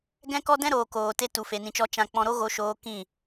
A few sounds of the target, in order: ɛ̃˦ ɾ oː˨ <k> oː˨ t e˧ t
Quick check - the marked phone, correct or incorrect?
correct